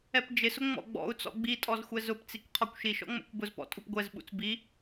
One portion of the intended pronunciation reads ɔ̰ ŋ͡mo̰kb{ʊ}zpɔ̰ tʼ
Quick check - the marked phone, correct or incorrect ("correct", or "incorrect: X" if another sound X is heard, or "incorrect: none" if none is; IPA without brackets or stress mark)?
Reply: correct